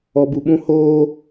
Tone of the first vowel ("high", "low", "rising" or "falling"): low